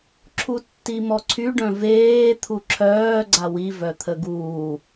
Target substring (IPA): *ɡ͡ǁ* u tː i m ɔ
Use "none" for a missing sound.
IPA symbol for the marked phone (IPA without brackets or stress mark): ǁʰ